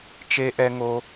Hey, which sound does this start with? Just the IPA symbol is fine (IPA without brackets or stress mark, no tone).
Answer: t͡ʃ